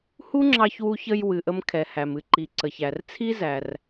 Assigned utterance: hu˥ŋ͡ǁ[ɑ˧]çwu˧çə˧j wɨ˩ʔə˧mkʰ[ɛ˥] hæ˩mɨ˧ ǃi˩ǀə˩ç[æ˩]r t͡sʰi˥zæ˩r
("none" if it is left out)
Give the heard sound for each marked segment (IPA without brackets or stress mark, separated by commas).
ɑ˧, ɛ˩, æ˩